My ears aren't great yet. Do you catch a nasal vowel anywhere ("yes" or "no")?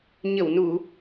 no